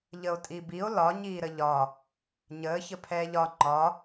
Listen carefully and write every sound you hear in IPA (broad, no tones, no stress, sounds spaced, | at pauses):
ʎ ə o̯ tʼ i b i o̯ l ɒ ɲ iː ɾ ə ʎ ɒ | ɲ əː ç ə pʰ ɛː ʎ ɒ ŋ͡ǃ ɒ